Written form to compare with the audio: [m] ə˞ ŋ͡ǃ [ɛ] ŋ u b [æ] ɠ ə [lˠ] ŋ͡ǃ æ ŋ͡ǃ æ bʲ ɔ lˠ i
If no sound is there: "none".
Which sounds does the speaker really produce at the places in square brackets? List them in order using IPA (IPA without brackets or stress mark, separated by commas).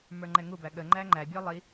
m, ɛ, æ, none